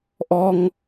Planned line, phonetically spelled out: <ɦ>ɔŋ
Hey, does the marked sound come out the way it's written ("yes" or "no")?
no